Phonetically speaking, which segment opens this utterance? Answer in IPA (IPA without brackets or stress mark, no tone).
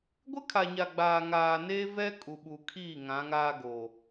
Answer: ɡʷ